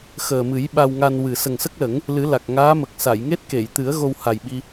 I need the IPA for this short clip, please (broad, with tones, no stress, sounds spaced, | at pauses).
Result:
x əː˨˩ m ɨ˨˩˦ j ɓ a˧ w ŋ a˧ n w ɨ˨˩ s ə˨˩ ŋ s ə˦˥ k̚ l ə˨˩˦ ŋ | l ɨ˨˩˦ l a˨˩ k̚ ŋ aː˧˥ m ə˨˩ k̚ s a˨˩˨ j ŋ e˦˥ t̚ k e˨˩˨ j t̪ ɨ˨˩˦ ə̯ ɣ o˧ w h a˨˩ j ɓ i˧